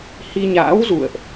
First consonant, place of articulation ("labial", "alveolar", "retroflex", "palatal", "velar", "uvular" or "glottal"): glottal